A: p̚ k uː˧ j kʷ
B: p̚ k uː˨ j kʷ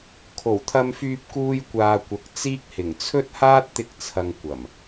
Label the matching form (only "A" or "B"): A